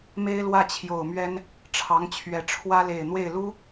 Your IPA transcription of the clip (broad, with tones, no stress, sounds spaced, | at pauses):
m e˥ ɪ̯ l w ä˥˩ t͡ɕʰ j o˨˩ ʊ̯ m ɥ ɛ˥ n | ʈ͡ʂʰ ɑ˧˥ ŋ t͡ɕʰ ɥ ɛ˨˩ ʈ͡ʂʰ w ä˥ l e˨˩ ɪ̯ n̪ w e˥˩ ɪ̯ l u˥